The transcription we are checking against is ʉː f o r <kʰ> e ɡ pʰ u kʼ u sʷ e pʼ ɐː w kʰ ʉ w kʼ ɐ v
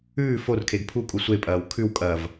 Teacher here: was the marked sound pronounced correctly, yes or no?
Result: yes